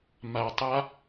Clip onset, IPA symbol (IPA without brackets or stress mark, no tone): m